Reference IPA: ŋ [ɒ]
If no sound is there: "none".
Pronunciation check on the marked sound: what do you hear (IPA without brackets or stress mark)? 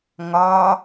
ɒ